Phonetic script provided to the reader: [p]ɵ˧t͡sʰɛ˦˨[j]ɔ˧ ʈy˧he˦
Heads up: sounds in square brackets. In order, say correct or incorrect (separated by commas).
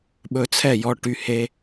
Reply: incorrect, correct